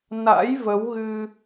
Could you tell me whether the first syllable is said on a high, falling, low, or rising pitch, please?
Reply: rising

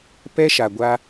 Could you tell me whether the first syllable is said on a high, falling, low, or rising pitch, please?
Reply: high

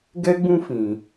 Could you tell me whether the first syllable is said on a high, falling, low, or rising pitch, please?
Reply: high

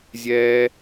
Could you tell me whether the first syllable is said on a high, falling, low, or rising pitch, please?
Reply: high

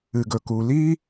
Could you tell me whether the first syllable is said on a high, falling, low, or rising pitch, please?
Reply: low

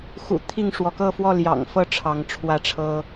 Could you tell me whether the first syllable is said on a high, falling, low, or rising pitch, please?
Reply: low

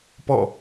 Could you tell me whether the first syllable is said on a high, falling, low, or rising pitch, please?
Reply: falling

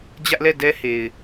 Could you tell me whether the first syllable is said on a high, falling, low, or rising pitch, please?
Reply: high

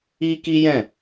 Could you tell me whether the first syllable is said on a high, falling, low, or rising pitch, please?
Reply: high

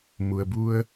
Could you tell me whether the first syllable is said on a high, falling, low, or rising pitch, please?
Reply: low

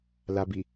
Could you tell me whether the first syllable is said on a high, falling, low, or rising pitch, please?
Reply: low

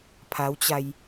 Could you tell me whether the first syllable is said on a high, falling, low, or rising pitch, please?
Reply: rising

